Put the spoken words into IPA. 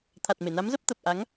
t̪ʰ a˨˩ t̚ m e˧˩ n a˨˦ m z ə˦˥ p̚ t̪ ə˨˩ p̚ ʔ a˨˦ ŋ

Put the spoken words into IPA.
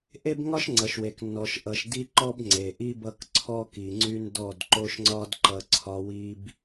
ʔ e˦ b ŋ ɒ˦ ʃ ŋ͡ǀ ʌ˨ ʃ w e˨ k nː ɔ˨ ʃ ʔ ʌ˨ ʃ d i˦ ǃ ɔ˦ b ŋ͡ǀ e˨ ʔ i˦ b ʌ˦ k ǀʰ ɔ˦ k i˨ ŋ͡ǀ y˦ n d ɔ˦˨ d ǃ o˦ ʃ ŋ͡ǀ ɒ˦ d ǃ ʌ˨ ǀʰ ɒ˨ w i˨ b

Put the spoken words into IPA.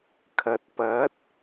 kʰ ɐ˨ t̚ p ɐ˨˥ t̚

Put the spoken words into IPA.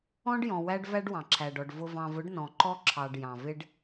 ɔ̃˦ ɖ j ɔ̃˨ w æ˦ ɖ v æ˦ ɖ w ɑ̃˨ ǁʰ æ˨ ɖ ɔ˨ ɖ v ʊ˨ v ɑ̃˨ v ʊ˨˦ ɖ n ɔ̃˨ ǃ ɔ˦ ǁʰ ɑ˨ ɖ j ɑ̃˨ v ɪ˦ ɖ

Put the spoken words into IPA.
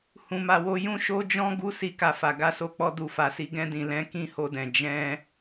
h ũ˧ m a˧ w o˦ j ũ˦ ʃ o˦ d͡ʒ ɔ̃˦ ɡ u˦ s i˧ k a˧ f a˨ ɡ a˧ s o˧ k͡p ɔ˧ d u˨ f a˨ s i˧ ɡ ɛ̃˧ d ĩ˨ l ɛ̃˨˦ k ĩ˦ h o˧ d ɛ̃˨ d͡ʒ ɛ̃˧

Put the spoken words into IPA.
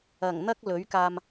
ɐ˨˩ ŋ n̪ ɐ˥ k̚ l ɵ˨˥ ɥ k aː˧ m

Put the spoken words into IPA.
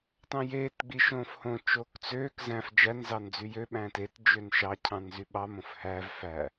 t ɑ̃ j eː t ɡ͡b i ʃ õː f h õ t͡ʃ oː k t͡s øː k z æ̃ f d͡ʒ æ n z ɑ n d͡z y j ø ɓ æ̃ː t e t d͡ʒ ø n ʃ ɑ cʰ ɑ̃ n z y ɓ ɑ m õ f h æ v f æ

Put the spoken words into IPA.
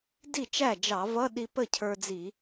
d i˥˩ t͡ʃ æ˥˩ d͡ʒ ɑ˧˩˧ v ʌ˧˥˧ ɗ i˧ p ə˥˩ cʰ ə˞˧ d͡z i˧˩˧

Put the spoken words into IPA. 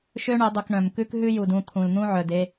ʃ ø˦ ɳ ø˨˦ dˤ u˨ k ɳ œ̃˨ m k ʉ˦ k ɦ ʉ˦ j u˨ d ũ˦˨ t̪ʰ ũ˨ l n̪ ũ˦ ʕ œ˨ d e˦

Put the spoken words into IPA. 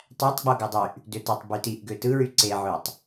tˤ æ tˤ ɡ͡b o ɡ æ dˤ y ʔ | d ø t e tˤ b y t i ʔ ɡ ø t ɯ ɹ y ǀ e ʕ ø tˤ

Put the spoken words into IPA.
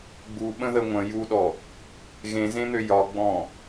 ɡ͡b u ɓ ə̃ ð ə ŋʷ ə̃ j u ɗ ɔ | ɣ ẽ z ẽ n̪ ø j ɒ ɡ͡b ɔ̃

